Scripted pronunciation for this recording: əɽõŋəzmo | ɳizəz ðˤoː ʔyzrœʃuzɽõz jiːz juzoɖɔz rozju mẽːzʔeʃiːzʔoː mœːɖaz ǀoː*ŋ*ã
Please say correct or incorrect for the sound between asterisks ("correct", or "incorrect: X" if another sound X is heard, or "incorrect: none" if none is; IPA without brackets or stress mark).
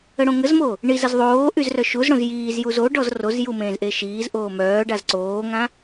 correct